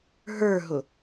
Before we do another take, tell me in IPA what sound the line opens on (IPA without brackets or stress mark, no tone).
ɦ